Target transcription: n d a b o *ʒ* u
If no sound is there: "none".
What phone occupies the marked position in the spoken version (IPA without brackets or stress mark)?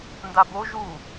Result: ʒ